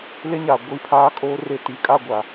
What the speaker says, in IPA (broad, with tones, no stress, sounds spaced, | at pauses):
l e˦ ɲ aː˨ ɡʷ i˦˨ pʰ aː˦ kʼ oː˦ r e˨ t i˨ kʼ a˦˨ ɡʷ a˨